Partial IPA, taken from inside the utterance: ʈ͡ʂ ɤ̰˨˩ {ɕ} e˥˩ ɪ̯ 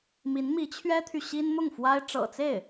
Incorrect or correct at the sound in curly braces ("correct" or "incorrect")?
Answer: incorrect